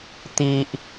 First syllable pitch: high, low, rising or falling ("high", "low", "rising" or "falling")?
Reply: high